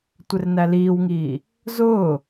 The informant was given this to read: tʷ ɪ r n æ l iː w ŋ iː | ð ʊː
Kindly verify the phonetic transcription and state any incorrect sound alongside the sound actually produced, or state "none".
ð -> z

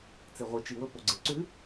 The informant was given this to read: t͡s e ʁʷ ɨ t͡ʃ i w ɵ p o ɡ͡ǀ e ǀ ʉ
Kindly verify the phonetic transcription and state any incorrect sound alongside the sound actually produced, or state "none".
none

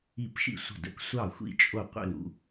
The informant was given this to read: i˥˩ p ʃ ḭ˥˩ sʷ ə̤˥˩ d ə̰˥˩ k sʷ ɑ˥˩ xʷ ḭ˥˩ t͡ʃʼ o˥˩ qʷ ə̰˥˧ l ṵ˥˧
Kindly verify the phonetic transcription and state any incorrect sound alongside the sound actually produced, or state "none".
none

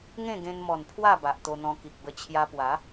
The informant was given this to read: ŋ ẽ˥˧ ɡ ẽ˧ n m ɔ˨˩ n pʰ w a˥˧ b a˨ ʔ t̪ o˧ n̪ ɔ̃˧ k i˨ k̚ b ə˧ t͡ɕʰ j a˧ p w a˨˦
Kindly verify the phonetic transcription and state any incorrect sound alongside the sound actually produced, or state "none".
none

